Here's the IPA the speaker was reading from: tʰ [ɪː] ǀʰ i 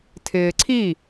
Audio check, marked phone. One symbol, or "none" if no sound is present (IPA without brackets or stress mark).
ɪː